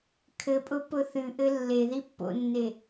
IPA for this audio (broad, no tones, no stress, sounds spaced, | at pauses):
kʰ ɘ pʼ ʊ p ʊ θ ɨ ʔ ɘ lː e ð i pː o̰ nː e